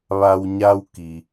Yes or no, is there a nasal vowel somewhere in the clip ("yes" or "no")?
no